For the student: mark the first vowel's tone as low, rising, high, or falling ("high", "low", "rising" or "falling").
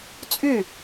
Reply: falling